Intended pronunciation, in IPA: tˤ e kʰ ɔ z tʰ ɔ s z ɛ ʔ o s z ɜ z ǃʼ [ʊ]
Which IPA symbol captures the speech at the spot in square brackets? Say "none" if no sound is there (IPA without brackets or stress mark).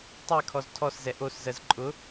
ʊ